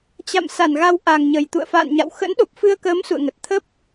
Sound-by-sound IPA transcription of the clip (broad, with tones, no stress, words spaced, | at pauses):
t͡ɕa̰˧˨m sa˧˩nɣa˨˦w ʔa˨˩ŋɲə˨˩j t̪ṵ˧˨ə̯fa̰ː˧˨nɲa̰˧˨w xə̰˧˥nɗo˨˩p̚fɨ˧ə̯kəː˨˦m sṵ˧˨ə̯ŋə˨˩t̚ t̪ʰə˦˥p̚